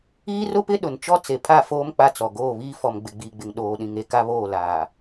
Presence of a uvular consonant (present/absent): absent